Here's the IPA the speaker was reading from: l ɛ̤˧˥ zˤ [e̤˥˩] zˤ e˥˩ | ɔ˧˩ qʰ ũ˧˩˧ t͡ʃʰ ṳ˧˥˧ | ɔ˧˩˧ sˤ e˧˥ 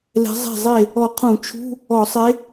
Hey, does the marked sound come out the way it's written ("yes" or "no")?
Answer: yes